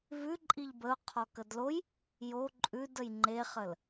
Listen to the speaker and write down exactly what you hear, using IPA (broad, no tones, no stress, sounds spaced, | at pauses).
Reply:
v ʉ ǃʼ i ʎ b ə ʊ̯ qʰ ɔ k ə d l o j | j o ǃʼ ʉ d ə j ŋ͡ǃ e χ ə l